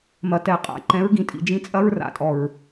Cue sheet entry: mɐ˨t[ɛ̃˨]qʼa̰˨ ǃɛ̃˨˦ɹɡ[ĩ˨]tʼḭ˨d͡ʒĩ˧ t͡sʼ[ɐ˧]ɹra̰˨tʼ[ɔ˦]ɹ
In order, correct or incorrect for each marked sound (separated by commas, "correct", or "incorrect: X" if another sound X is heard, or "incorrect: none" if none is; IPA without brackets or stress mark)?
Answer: incorrect: ɛ˨, correct, incorrect: ɐ˦, incorrect: ɔ˨